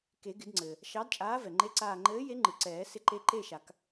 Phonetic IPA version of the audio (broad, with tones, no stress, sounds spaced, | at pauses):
k e˨˩˦ ɡ ɪ˨˩˦ d ŋ͡ǀ ɘː˩ | ʃ ɑ˨˥ d t͡ʃʼ aː˨˥ v ɛ˩ ŋ͡ǃ e˧˥˧ ǀ aː˦˨ ŋ͡ǃ ɘː˨˥ j e˨˥ ŋ͡ǃ ɯ˩ ǀ ɛː˨˩˦ s ɪ˨˥ ǃ e˨˥ ǃ e˦˨ ʃ a˨˩˦ k